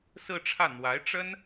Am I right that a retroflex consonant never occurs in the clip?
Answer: no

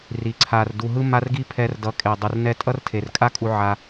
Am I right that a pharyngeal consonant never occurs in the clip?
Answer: no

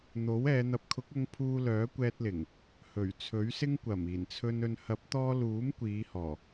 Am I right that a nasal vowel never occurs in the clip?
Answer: yes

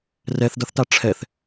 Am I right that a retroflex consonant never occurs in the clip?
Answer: no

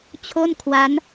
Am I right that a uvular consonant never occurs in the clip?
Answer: yes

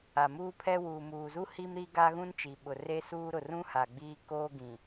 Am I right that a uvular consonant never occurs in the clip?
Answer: yes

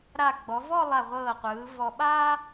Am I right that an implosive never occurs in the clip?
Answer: no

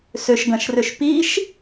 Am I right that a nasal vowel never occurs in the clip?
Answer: no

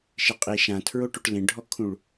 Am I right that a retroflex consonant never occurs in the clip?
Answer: no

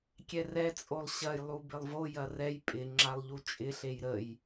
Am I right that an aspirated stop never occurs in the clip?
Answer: yes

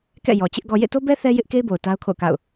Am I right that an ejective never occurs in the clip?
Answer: yes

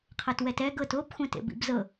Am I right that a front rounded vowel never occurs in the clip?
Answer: yes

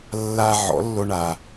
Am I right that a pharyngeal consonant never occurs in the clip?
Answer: no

